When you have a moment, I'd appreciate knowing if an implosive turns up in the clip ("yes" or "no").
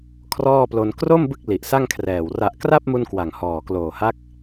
no